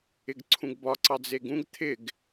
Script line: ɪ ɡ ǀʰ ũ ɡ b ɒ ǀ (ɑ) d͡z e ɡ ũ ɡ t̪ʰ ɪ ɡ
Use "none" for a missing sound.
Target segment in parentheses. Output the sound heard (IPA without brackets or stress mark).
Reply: ɑ